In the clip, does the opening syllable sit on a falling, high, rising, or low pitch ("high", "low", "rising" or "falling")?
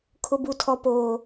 low